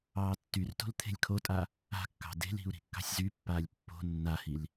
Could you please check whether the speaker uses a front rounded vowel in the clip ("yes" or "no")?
yes